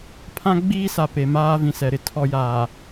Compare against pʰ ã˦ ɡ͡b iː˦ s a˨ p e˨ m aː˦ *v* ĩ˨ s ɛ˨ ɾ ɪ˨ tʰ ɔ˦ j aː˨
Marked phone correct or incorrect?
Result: correct